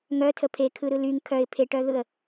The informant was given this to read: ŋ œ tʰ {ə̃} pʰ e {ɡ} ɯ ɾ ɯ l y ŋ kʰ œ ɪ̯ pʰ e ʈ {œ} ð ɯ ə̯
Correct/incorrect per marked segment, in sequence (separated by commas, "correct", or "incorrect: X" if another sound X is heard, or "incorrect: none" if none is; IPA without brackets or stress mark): incorrect: ə, incorrect: kʰ, correct